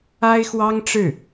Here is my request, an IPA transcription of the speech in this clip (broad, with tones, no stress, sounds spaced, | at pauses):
a˥ ɪ̯ x w ɑ˥ ŋ ʈ͡ʂ ɻ̩˥˩